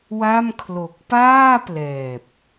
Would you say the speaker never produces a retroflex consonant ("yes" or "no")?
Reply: yes